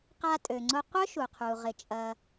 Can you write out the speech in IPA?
q a˧ tʼ ø˩ ŋ͡ǀ ʊ˧ qʷ œ˥ ʃ u˩ qʰ u˩ ʁ ɪ˩ t͡ʃʼ ɐ˩

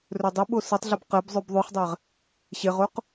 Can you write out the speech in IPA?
r ɵ dˤ y ɓ o s ɨ tˤ ɮ ɵ b q ɛ b zˤ ʉ b ðˤ ʉ χ dˤ ɛ ʁ | ɕ e ʁ o q

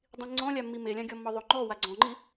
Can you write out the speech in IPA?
dˤ ĩ ŋ͡ǀ ɔ̃ lʲ a mː i m e lʲ ã ɡʲ ɔ mː ɔ ðˤ o ŋ͡ǃ ɔ w a ɡ͡ǀ ɔ̃ ŋ͡ǃ i

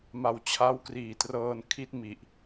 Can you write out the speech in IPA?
m a˨˩ w t͡ɕʰ a˦˥ w k r iː˨˩ t r ɤː˧ n kʰ i˦˥ t̚ m i˨˩ ʔ

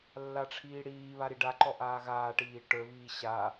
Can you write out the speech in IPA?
lː a ʈ͡ʂʰ iː ɽ iː β a ɾ i ɖ a ǃ ɔ ʔ aː ɣ aː ʈ iː ʈ ə˞ β iː ɕ a

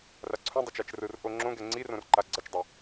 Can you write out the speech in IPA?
r a ǀʰ ũ dˤ ʌ t͡ʃ a t͡ʃ r ɯ r ʔ o ŋ͡ǁ õ ɡ ɛ ŋ͡ǀ i r õ r ǃ a ɡ͡ǀ ʌ t͡ʃ dˤ i

